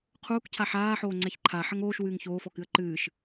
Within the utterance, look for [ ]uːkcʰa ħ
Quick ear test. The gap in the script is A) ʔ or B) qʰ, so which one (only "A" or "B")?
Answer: B